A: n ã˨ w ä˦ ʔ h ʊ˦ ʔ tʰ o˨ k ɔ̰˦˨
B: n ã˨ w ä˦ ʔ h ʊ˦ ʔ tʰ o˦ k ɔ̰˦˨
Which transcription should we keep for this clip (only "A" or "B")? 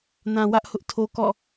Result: B